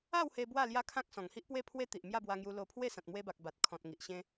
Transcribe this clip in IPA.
a˥˧ w h e˧ b w a˥˧ l j a˦ kʰ ã˦ k̚ s ɔ̃˨˩ ŋ h i˦ ʔ p w e˥˧ pʰ w e˦ t̪ i˨ ʔ m j a˥˧ b w a˧ ŋ j u˧ l o˧ pʰ w e˥˧ s ã˨ t̚ m w e˧ b a˨ k̚ b a˨ t̚ kʰ ɔ̃˨ t̚ ŋ i˨ ʔ ɕ ẽ˧

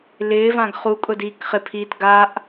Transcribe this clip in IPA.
l ɪː v ã ɡ χ u kʼ ʊ d iː k χ ɪ pʰ iː t ɡ a ʔ

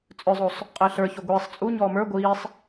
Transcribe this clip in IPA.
t͡sʼ œ zˤ o sˤ | qʼ əː ɬ ə˞ ç o ɡʷ iː sˤ t͡sʼ u ɲ ɔː m ə˞ ɡʷ iː sˤ

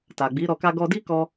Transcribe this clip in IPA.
t a˨ ɡ͡b i˨˦ ɾ ɔ˧ k a˦ ɡ ɔ˦ d i˦ k ɔ˧

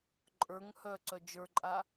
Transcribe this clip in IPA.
ǃʼ ə˞ ŋ h œ ǀ œ d͡ʒ ə˞ ǃʼ a

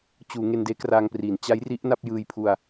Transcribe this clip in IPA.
t͡ɕ uː˩˦ ŋ e˧ n d eː˦˥ k r aː˧ ŋ p r iː˩˦ n t͡ɕ a˦˥ j r i˦˥ ʔ n a˥˩ p̚ j ɯː˧ j pʰ u˧ a̯

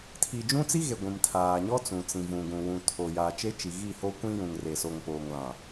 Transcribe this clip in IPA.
tʰ i˨ d͡ʒ ũ˦ t͡s i˦ ɣ e˨ ɡʷ ĩ˨ m tʰ aː˨ ɲ ɔ˦ t͡s ũ˨ t͡s ĩ˨ v ũ˨ ɡ ũ˨ w ũ˨ tʰ o˨ j a˨ t͡ʃ e˦ t͡ʃ i˨ ɣ i˦˨ h o˦ kʷ ĩ˦ j ũ˨ ŋ r e˨ s o˨ ŋ p oː˨ ŋ l ã˨

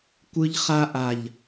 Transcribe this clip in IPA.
kʷ ɯ˦ ʎ χ a˦ ʔ a˨ ʎ

